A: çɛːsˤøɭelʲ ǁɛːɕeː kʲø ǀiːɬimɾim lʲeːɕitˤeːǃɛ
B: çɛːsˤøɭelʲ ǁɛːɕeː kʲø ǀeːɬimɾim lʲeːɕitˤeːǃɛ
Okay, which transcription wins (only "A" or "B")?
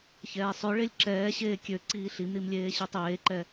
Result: A